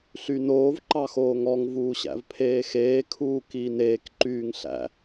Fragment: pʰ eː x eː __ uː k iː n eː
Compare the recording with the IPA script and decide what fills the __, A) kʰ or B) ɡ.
A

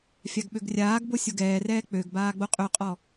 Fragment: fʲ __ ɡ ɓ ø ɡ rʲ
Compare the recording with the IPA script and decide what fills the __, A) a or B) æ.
A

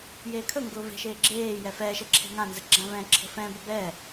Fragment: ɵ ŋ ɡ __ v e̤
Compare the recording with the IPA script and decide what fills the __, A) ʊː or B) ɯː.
A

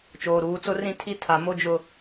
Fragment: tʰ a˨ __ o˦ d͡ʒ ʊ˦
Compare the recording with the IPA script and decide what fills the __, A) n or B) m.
B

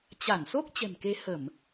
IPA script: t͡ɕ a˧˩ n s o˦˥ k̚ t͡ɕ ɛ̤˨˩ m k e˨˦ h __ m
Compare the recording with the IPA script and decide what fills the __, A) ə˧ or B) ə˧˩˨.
B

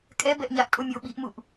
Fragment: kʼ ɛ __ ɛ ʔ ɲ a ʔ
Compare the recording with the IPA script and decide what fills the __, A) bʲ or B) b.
B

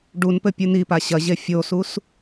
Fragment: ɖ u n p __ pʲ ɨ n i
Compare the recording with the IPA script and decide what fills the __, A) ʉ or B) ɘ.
B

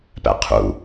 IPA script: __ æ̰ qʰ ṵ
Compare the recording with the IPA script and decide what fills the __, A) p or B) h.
A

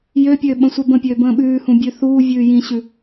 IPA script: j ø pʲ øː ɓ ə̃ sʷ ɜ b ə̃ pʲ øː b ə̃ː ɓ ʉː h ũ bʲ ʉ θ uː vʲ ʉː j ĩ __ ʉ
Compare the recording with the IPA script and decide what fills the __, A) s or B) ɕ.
B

